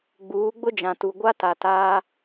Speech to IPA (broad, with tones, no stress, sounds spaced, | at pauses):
ɡ͡b uː˨˦ ɡ͡b ʊ˦ d͡ʒ ã˨ t u˨ ɡʷ a˦ t a˨ t aː˦